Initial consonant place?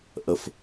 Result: glottal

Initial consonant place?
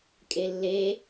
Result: velar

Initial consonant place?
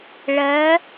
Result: retroflex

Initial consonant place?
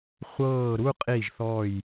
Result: uvular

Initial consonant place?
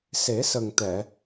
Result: alveolar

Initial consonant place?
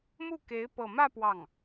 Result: labial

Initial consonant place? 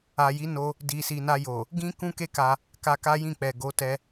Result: palatal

